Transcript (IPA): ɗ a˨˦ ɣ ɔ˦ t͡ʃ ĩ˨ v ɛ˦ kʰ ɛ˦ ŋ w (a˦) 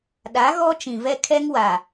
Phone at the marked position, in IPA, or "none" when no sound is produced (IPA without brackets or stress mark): a˨